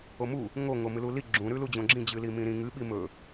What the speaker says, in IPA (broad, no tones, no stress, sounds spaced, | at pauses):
o m u | ŋ o ŋ o m ɨ l u l i ɡ͡ǁ ũ ɾ ʉ l u d͡ʑ õ ɡ͡ǁ ĩ d͡ʑ ɨ l i m ĩ ɾ ĩ ŋ ɨ ɓ i m ɵ